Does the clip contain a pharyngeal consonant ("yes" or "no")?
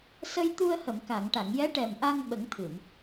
no